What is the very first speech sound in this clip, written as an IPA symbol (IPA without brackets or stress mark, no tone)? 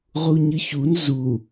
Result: ʁ